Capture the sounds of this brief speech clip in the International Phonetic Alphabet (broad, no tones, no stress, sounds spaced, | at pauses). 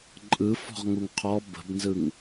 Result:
ǃʼ ɯ f ɔ̤ ʁ ŋ u ŋ qʰ ɔ b ə̤ b n z ɯ ŋ